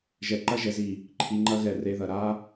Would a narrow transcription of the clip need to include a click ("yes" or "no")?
yes